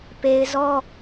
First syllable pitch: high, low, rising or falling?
high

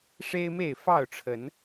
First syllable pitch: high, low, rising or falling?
high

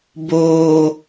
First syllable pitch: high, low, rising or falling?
low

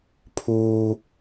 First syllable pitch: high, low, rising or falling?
high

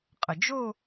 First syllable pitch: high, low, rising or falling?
low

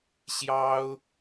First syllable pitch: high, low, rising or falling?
high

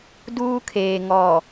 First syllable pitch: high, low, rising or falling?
high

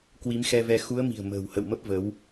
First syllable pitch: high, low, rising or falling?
rising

